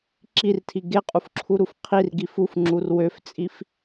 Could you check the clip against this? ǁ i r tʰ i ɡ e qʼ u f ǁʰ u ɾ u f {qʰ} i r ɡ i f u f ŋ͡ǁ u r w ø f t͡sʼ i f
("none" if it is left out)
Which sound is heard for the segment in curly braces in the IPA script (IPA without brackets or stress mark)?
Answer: qʰ